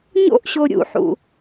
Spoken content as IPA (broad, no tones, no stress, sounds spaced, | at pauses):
ɲ o̰ ʔ ɕ o ɾʲ ṵ ħ ṵ